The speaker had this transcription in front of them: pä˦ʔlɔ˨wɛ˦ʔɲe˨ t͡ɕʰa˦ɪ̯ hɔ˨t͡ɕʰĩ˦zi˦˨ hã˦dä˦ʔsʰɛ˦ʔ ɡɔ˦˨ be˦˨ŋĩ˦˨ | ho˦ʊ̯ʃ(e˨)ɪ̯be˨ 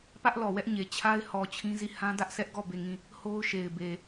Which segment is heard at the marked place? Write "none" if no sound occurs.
e˨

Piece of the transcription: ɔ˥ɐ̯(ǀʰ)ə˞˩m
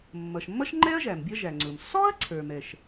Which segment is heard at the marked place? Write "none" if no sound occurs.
ǀʰ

